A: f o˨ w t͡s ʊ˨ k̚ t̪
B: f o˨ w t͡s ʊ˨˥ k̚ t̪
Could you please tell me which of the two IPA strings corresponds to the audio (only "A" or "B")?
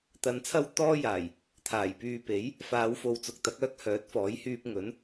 A